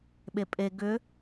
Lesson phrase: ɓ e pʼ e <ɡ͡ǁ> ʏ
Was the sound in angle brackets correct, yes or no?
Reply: no